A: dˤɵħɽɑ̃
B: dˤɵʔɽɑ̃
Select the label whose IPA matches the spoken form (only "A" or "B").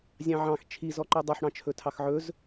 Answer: A